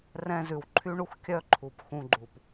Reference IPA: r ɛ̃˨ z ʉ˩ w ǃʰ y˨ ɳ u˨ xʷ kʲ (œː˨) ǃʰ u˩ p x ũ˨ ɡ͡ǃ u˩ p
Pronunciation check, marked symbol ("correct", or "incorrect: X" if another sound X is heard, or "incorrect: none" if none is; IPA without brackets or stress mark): incorrect: œ˨